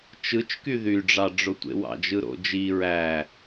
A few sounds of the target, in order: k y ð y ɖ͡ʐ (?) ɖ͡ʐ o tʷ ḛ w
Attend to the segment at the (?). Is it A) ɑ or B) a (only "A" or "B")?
A